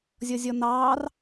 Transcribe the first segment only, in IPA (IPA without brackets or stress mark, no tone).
zʲ